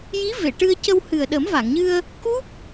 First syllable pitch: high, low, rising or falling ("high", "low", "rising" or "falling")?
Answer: rising